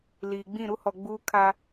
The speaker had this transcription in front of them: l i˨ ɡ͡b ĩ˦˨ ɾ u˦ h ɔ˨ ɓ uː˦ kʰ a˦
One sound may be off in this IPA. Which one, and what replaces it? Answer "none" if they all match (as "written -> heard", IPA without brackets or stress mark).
ɓ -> ɡ͡b